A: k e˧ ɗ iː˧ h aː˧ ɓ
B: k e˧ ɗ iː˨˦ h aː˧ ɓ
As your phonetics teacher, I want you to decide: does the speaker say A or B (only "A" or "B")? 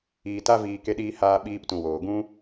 A